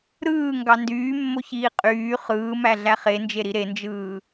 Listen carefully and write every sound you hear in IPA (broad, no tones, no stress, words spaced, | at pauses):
ɾɯːŋɡɑ ndyːmːoçiː qʼyː χɯːmæɮæ χend͡ʒeɾi ɾend͡ʒɯː